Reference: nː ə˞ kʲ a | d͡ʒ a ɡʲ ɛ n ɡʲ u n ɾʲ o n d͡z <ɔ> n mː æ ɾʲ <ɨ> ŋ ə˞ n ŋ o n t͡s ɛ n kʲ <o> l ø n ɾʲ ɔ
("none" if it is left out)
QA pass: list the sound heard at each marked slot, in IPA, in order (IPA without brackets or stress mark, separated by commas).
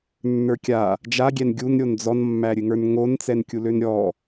ɔ, ɨ, u